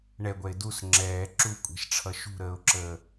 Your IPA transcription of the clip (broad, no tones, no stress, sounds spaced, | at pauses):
ɳ ɛ ɡʷ ɛ ɪ̯ d u s ŋ͡ǁ ɛː ǁ u kʷʼ ɛ̤ ʃ ʈ͡ʂʰ ʌ ʃ ṳ ɾ əː ʊ̯ ǁ əː